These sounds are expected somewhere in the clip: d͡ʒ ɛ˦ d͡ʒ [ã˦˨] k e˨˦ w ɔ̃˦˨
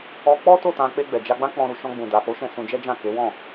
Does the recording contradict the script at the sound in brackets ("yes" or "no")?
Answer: no